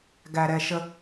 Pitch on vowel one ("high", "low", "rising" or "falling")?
low